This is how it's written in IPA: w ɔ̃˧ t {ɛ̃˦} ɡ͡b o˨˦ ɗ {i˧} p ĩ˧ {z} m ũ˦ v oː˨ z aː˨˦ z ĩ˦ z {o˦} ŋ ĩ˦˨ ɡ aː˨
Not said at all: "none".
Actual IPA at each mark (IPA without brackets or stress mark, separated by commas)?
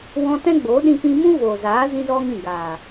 ɛ̃˦, ĩ˧, none, ɔ˦